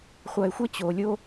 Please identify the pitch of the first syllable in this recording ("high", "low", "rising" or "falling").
low